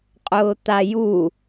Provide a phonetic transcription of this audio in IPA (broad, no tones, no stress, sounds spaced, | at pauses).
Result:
qʼ ʊː t̪ a j u